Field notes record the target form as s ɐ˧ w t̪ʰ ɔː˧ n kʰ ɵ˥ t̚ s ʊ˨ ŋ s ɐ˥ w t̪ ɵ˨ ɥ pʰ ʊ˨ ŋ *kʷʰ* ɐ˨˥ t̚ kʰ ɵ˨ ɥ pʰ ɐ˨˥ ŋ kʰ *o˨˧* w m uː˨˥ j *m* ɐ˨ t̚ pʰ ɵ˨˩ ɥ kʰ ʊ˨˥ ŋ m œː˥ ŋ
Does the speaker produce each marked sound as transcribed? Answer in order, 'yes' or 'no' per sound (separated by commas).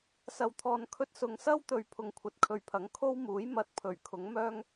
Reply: yes, no, yes